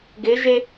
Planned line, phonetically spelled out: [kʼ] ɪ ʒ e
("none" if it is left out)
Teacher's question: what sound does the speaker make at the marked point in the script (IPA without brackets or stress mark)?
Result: ɡ